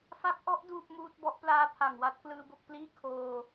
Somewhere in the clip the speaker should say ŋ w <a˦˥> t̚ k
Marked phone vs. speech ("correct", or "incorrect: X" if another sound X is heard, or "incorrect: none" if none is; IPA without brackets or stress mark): correct